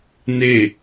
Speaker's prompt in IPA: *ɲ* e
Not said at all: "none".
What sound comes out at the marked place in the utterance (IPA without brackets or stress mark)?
n